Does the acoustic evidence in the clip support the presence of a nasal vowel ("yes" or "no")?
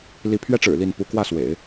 no